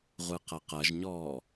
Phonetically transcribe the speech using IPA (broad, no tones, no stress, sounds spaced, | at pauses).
ʁʷ ɯ q ɐ q ɐ ʒ ɲ ɔː